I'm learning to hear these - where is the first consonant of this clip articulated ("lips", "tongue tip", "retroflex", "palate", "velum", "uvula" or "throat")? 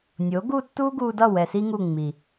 tongue tip